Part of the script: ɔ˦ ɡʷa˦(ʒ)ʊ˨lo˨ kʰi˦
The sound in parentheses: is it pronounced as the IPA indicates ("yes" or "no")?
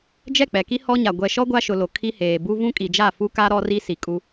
no